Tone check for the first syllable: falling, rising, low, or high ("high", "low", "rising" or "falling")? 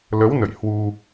rising